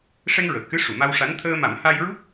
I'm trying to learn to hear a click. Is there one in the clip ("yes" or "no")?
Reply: no